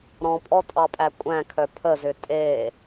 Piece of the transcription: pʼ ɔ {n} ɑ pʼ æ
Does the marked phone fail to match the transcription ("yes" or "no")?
yes